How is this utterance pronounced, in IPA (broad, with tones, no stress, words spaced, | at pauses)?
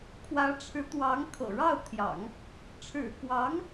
kʰwä˧˥ʈ͡ʂʰɻ̩˧˥t̪wɑ˧˥ŋ kʰɤ̰˨˩ɻɑ˥˩ʊ̯t̪ʰjɑ̰˨˩˦ŋ | ʈ͡ʂʰɻ̩˨˩kwɑ˧˥ŋ